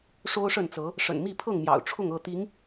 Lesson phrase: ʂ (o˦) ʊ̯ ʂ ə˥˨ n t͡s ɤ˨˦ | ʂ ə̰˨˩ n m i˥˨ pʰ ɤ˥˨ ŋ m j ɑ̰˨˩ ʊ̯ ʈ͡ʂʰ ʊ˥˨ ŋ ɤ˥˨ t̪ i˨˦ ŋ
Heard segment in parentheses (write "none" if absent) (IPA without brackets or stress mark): o˦